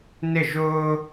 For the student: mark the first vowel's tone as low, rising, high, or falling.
falling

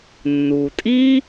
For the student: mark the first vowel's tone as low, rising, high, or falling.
low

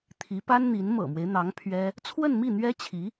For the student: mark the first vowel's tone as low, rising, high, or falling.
rising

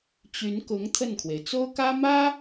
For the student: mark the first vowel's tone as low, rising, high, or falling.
rising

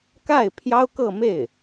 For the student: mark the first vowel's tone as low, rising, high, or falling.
falling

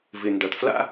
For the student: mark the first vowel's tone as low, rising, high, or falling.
low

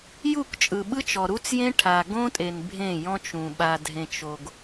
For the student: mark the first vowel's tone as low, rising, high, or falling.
falling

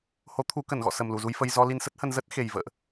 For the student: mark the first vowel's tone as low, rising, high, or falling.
rising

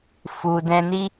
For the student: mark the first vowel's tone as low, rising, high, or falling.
low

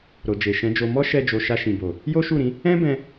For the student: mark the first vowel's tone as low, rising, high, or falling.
low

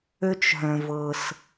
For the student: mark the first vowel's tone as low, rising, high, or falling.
high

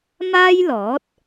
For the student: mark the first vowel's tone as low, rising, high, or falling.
high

